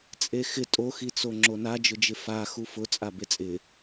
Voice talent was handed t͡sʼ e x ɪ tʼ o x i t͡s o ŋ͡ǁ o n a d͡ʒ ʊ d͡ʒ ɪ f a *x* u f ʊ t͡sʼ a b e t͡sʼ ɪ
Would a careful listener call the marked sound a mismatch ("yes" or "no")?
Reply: no